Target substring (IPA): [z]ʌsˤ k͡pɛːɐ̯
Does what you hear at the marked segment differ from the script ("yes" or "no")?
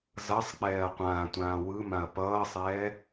no